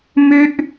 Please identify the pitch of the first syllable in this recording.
high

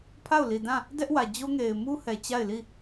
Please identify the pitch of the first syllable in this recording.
falling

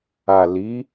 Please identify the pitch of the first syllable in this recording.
low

